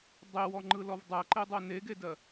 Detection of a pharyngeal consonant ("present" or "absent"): absent